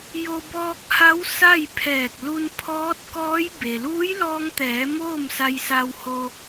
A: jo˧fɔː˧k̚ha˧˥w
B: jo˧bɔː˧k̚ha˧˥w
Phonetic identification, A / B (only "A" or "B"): B